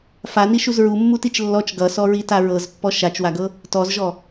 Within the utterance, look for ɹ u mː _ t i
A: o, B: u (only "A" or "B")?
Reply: B